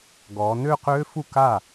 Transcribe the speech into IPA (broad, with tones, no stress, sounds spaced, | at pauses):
ɡ ɔ˩˧ n ø˥˧ q ø˦˥ f u˥˩ k a˥˩